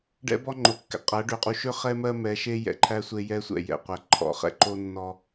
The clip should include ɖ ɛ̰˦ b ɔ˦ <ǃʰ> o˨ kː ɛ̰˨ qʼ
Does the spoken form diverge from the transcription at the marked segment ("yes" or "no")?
yes